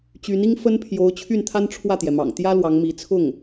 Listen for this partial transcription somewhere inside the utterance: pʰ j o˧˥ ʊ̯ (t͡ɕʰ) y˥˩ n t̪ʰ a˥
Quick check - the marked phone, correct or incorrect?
correct